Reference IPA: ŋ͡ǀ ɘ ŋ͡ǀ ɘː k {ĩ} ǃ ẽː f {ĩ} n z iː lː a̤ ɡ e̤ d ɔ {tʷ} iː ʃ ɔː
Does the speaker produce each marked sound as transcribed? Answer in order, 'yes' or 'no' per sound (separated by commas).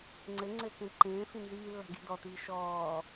no, yes, no